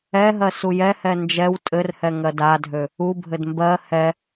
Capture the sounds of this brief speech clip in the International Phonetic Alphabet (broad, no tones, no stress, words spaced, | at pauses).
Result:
ɛɦɜ sujɛhɛ nd͡ʒɛw tʼɘrhɛ ŋɜdadʱø | ubʱɘd mbɜ hɛ